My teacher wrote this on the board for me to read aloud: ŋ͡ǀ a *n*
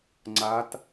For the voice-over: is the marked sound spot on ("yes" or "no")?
no